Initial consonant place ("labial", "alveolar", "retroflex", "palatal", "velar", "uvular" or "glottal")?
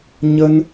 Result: palatal